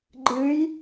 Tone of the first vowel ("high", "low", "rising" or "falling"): rising